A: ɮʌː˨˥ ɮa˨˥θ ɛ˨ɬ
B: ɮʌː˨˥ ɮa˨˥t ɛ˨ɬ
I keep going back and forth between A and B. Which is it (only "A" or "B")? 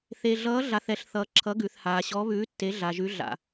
A